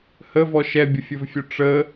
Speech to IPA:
h ə v ɔ ʃ ɛ bʲ ə fʲ ɵ v fʲ ɵ ʈ͡ʂ ə

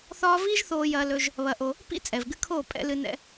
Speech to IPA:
θ ɒː˦ v iː˦ ʒ θ oː˧ j ɐː˧ l ɵ˧ ʒ | β ɐ˧ ʔ o˧ | p ḭ˦ t͡sʼ ɛ˨ v ɡ ɨ˧ kʰ oː˦˨ pʼ ɛ̰˧ l ɨ˧ n ɛ̰˧

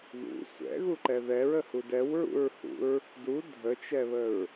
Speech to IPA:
ð ṵ sʷ ɛ̰ ɣ u ǃ ɛ ð ɛ ɹ ə h u d ɛ w ɹ ṵ ɹ h ṵ ɹ | d u dʱ ə t͡ʃ ɛ β ə ɹ

